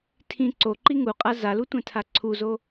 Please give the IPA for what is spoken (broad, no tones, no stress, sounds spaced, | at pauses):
tʰ ĩ ǀ o ǃ i ŋ u qʼ a z a l u tʷ ẽ tʰ a ǀʰ u z o